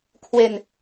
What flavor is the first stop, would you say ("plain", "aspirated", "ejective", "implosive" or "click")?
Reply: aspirated